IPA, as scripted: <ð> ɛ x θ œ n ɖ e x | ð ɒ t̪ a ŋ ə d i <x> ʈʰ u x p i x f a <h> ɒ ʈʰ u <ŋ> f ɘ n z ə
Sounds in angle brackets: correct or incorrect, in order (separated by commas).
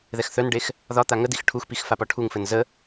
correct, correct, incorrect, correct